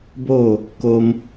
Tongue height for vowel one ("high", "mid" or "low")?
mid